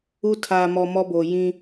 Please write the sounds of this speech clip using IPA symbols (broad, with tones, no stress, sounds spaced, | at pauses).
u˦ tʰ aː˨ m ɔ˨ m ɔ˦ b oː˨ j ĩ˦